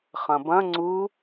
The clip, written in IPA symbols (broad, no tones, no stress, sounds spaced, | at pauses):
χ ɐ̃ b ɐ̃ ŋ͡ǀ u